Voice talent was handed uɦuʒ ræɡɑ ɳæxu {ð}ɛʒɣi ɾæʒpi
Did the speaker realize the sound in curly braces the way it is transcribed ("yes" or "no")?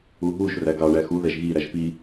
yes